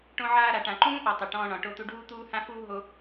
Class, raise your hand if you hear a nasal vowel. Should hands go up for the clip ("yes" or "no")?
yes